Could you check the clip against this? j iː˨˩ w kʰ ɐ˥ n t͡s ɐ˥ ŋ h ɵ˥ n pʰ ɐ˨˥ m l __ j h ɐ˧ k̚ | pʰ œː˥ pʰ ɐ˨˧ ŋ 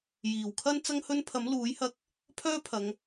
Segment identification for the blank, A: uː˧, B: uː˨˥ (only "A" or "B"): B